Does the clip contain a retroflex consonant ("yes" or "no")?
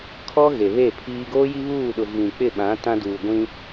no